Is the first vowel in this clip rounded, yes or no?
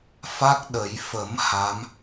no